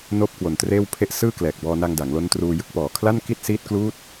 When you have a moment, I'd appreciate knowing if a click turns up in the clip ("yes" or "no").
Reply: no